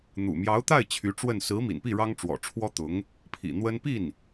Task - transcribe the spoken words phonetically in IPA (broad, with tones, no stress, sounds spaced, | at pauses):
n̪ ṵ˨˩ m j ɑ˧˥ ʊ̯ t̪ a˥˩ ɪ̯ t͡ɕʰ y˧˥ ʈ͡ʂ w ə˥˩ n s ɹ̩˧˥ m ḭ˨˩ n p i˥˩ ɻ ɑ˥ ŋ ʈ͡ʂ w ɔ̰˨˩ ʈ͡ʂʰ w ɔ˥ t̪ ʊ˧˥ ŋ | pʰ ḭ˨˩ n̪ w ə˥ n p i˥˩ n